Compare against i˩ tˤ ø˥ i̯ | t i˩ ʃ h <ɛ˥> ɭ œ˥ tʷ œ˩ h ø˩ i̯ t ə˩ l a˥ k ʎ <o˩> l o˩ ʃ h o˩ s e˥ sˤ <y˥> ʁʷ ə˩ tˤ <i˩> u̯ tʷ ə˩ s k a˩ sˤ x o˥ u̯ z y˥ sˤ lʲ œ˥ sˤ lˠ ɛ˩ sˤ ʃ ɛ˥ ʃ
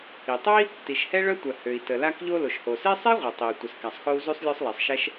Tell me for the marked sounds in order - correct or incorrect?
correct, incorrect: o˥, incorrect: e˥, correct

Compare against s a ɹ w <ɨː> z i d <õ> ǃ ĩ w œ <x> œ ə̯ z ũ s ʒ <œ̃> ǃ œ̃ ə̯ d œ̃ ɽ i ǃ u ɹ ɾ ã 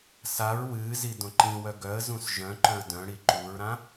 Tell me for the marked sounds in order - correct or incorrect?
correct, correct, incorrect: ɡ, correct

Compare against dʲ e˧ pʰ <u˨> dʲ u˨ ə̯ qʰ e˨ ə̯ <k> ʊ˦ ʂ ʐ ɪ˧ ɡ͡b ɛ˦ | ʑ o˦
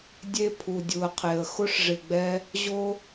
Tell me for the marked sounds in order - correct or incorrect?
correct, incorrect: x

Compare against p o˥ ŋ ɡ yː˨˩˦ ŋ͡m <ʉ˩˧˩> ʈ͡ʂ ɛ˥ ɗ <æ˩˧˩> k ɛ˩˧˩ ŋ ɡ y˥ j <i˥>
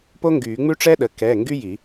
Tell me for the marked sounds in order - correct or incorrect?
incorrect: ʉ˥, incorrect: ə˩˧˩, incorrect: i˨˩˦

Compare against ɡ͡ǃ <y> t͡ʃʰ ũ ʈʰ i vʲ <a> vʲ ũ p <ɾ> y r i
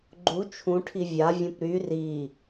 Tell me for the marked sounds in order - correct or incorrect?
incorrect: u, correct, correct

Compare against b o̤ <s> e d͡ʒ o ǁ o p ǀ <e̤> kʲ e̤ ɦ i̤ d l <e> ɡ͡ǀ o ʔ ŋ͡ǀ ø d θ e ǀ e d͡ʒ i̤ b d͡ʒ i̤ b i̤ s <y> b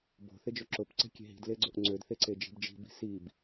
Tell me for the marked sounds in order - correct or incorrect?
incorrect: θ, correct, correct, incorrect: i

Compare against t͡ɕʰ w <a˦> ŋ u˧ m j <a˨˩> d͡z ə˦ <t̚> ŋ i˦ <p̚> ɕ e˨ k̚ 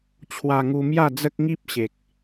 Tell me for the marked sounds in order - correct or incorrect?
incorrect: a˧, incorrect: a˥˧, incorrect: k̚, correct

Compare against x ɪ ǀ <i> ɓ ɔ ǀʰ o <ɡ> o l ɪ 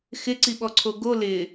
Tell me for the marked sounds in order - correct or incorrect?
correct, correct

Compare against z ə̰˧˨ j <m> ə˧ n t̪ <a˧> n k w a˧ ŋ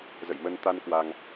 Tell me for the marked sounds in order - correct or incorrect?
correct, correct

